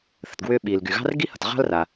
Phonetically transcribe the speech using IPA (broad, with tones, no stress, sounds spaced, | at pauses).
θ ə̤˩ t ɡ w ʏː˥ ɓ iː˩ l ɡ y˩ ɣ ɑ̤˥ r ɡ i˥ h ʌ˩ t ʁ ɑ̤˥ l r a˩